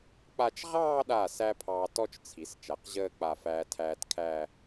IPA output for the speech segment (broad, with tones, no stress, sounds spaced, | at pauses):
k͡p a˥˧ t͡ʃ ʁ ɑː˥˧ ɗ a˧˩ s æ˥ pʰ ɑː˧ t ɔ˥ t͡ʃ t͡sʰ i˩˧ s t͡ʃ a˩˧ q ʑ əː˥˧ k͡p a˧˩ f æː˧ tʰ æː˧ t kʰ æ˥˧